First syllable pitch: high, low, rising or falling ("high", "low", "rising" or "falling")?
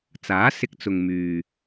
rising